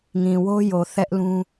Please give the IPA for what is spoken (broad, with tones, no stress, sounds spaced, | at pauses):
ŋ ĩ˨ w o˦ j o˨ θ ɛ˦ ʔ l ũ˦